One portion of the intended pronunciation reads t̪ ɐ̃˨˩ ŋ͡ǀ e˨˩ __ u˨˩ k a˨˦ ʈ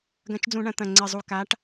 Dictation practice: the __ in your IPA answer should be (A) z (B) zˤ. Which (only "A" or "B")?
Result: B